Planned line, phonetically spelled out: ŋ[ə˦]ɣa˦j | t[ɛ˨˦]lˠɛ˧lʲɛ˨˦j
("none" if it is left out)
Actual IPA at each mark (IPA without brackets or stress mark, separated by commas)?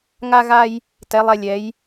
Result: a˦, ɛ˨˦